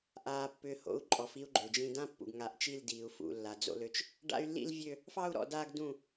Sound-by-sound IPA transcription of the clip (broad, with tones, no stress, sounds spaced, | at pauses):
ʔ aː˨ pː ʏː˨ h o̰˨˦ u̯ ǃʼ ɔ˨˦ f i˦ u̯ ɡ͡ǃ ø˨ d͡ʒ ĩ˦ d ã˦ pː ṵ˨ ɡ ŋ a˨ ʔ t͡ʃ i˦˨ l d iː˨ u̯ f ṵ˨ lː a˨ d͡z o̰˦ l ø˦ t͡ʃ | ɖ a̰˦ y̯ lː ḭ˦ l vʲ ø˦ | f ɑ˦ u̯ ɾ ɔ̰˨ d aː˦ ɡ d ũ˦˨